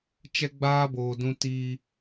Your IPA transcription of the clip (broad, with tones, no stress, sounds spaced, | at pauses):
t͡ʃ ɛ˦ ɡ͡b aː˦ b oː˨ d ũ˦ t i˦